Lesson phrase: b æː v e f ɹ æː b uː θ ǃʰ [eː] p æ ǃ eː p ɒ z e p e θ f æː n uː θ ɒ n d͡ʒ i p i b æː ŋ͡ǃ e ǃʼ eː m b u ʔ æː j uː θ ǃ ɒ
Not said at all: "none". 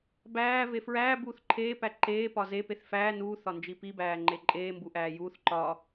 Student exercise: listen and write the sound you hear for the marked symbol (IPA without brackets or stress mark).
eː